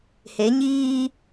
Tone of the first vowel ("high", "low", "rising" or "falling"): rising